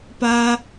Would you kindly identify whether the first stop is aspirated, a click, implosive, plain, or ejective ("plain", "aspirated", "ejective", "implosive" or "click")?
plain